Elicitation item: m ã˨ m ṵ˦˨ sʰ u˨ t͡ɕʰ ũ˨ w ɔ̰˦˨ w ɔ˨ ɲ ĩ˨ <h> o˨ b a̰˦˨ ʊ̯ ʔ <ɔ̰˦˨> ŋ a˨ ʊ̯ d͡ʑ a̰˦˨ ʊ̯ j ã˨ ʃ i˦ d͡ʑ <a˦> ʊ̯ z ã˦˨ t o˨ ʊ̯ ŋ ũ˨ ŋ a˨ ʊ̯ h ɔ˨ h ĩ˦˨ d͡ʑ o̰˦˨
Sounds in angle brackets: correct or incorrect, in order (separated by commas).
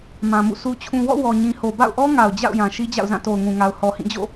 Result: correct, incorrect, incorrect